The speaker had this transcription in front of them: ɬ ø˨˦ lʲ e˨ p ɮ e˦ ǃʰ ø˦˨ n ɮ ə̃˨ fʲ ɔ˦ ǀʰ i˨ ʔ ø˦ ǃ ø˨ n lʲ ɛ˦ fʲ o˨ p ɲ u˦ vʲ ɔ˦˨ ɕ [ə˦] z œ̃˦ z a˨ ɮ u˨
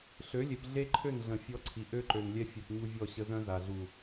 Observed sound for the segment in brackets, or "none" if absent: ə˦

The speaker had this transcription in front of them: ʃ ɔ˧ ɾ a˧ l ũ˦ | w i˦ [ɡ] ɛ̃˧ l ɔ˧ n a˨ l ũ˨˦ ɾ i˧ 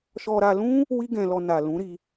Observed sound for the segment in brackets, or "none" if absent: ɡ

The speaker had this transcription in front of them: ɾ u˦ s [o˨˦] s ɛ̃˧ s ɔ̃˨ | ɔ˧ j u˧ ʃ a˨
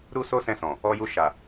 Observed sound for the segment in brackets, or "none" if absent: o˦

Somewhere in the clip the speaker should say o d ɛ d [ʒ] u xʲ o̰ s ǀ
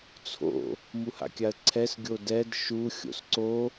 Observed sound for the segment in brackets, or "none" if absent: ʃ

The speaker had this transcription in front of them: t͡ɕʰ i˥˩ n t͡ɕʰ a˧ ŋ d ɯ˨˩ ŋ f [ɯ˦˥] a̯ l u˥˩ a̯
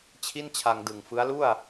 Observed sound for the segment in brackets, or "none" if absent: ɯ˦˥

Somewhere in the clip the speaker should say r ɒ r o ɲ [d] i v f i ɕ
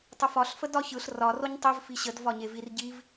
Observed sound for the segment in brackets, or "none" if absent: tˤ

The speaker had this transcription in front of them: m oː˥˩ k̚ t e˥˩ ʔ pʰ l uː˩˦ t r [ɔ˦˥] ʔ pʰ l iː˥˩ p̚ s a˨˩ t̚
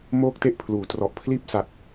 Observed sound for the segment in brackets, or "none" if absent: ɔ˨˩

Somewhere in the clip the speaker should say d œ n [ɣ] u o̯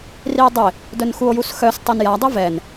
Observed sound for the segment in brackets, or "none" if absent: x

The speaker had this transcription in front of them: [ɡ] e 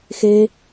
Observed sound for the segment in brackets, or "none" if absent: x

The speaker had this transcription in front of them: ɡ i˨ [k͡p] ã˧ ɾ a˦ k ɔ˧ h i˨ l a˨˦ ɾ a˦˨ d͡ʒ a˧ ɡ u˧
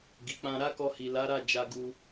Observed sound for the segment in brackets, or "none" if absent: k͡p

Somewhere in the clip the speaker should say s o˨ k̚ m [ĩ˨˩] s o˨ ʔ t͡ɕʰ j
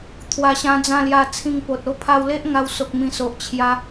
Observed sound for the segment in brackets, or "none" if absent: ĩ˨˩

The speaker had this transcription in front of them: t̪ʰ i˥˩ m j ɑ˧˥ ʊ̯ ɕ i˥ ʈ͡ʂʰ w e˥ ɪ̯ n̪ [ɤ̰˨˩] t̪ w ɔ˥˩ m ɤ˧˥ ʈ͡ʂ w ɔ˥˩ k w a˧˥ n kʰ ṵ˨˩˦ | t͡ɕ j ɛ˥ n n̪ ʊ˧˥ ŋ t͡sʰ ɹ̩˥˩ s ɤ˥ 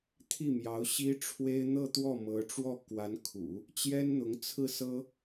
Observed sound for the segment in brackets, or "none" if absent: ɤ˥˧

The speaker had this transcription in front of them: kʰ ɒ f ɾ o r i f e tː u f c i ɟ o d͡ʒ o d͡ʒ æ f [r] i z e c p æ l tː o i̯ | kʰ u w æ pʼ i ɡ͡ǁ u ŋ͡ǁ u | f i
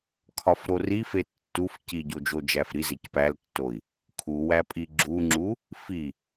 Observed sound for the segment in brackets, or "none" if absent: ɾ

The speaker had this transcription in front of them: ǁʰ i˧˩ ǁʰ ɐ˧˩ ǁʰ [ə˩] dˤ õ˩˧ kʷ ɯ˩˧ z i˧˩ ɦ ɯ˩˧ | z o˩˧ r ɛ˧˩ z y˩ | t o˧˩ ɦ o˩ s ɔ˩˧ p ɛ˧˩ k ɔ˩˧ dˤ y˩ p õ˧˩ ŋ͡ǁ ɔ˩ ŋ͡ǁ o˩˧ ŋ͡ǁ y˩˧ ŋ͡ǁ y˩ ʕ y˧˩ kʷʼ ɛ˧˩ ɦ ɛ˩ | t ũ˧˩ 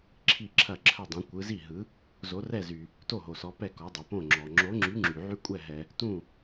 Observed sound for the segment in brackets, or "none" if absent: ə˧˩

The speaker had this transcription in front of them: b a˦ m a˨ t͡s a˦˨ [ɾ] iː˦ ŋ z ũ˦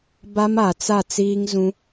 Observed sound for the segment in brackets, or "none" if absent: t͡s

